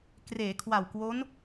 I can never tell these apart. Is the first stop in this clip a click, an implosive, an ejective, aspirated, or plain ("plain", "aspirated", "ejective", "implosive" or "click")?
plain